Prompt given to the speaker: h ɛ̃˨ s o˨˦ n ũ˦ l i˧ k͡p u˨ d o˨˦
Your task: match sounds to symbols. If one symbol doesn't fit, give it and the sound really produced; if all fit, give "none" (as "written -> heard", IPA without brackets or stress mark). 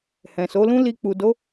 n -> l